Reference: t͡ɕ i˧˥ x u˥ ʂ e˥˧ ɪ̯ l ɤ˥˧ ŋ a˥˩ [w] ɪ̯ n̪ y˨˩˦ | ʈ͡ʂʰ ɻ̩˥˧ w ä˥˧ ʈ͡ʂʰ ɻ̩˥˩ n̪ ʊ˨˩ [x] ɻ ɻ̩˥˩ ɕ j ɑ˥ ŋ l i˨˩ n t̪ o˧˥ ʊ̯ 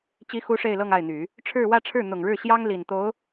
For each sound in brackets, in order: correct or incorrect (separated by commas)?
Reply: incorrect, incorrect